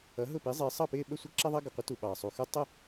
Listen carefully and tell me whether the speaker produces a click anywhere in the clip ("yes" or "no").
yes